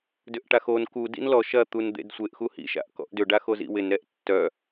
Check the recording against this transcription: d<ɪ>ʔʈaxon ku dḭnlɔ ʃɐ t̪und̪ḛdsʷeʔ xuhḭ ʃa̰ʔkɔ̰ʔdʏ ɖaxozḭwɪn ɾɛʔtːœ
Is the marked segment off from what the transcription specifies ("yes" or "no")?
yes